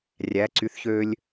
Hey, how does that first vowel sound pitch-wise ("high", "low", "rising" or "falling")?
rising